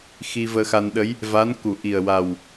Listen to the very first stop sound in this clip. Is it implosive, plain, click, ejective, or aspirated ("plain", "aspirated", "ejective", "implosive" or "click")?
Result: implosive